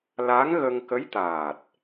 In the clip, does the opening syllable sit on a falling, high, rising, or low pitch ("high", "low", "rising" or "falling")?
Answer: rising